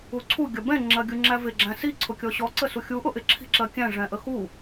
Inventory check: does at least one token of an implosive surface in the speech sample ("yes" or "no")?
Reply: no